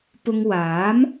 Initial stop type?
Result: plain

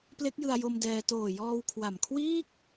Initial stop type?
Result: plain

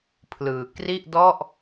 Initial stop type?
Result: aspirated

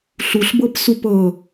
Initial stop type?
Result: plain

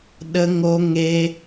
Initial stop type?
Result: implosive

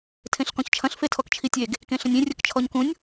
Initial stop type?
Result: aspirated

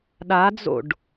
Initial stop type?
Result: implosive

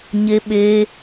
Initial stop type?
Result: implosive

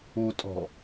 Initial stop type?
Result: ejective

